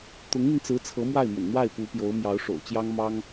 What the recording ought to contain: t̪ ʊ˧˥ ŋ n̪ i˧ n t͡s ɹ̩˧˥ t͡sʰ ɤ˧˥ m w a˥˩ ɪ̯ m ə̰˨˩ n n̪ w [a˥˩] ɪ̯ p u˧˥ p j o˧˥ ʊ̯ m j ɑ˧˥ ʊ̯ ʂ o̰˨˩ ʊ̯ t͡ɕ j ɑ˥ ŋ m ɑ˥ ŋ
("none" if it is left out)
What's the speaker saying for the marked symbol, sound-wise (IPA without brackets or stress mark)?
a˥˩